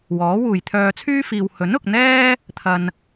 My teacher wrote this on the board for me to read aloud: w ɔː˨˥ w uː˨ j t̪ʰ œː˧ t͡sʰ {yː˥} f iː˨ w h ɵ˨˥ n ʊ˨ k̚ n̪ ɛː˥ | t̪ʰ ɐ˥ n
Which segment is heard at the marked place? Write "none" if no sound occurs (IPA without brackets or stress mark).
yː˥